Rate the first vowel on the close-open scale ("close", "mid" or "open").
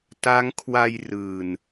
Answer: open